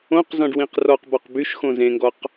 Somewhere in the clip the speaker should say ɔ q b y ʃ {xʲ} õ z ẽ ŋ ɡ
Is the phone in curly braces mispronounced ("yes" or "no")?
yes